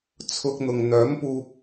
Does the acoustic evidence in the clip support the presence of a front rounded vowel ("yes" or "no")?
yes